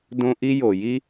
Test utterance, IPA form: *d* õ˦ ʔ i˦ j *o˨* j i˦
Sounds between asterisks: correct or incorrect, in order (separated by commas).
correct, correct